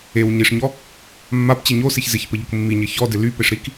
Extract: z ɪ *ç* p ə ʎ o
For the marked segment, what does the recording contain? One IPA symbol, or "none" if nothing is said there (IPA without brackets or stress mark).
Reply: ç